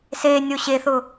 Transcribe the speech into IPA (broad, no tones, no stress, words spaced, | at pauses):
senʲo ɕeθʊ